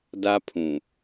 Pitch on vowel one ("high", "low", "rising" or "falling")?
high